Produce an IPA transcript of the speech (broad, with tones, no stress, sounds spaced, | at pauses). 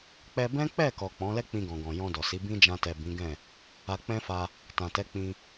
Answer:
k͡p ɛ˧ b ɛ̃˦ k͡p ɛ˦˨ k ɔ˨ k͡p ɔ̃˨˦ l ɛ˦ k͡p ĩ˧ ɡ ɔ̃˨ ɡ ɔ̃˨ j ɔ̃˧ d ɔ˨ s i˨˦ b ĩ˦ d͡ʒ ã˧ t ɛ˨ b ĩ˨˦ ɡ ɛ̃˦˨ | a˧ k͡p ɛ̃˦ f a˧ | t ã˨ t ɛ˨˦ k͡p ĩ˧